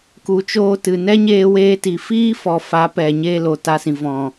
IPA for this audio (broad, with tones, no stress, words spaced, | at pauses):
ku˨t͡ʃoː˧tɨ˨ nɛ˦ɲeː˧weː˧ti˨ fiː˦ fɔ˨fa˨˦ pɛ˨ ɲe˧ lo˨ta˧sĩ˨ vɔ̃˨